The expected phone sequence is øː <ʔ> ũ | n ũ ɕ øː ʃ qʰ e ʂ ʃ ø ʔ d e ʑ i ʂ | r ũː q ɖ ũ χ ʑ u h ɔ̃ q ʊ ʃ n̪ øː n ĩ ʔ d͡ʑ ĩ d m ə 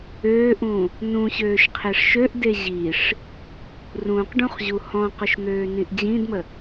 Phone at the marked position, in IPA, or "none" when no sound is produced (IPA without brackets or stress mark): ʔ